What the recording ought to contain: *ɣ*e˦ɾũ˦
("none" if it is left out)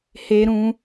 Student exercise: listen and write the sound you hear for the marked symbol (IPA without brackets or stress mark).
h